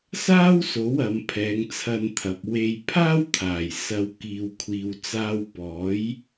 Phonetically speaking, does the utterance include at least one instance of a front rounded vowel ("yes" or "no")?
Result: no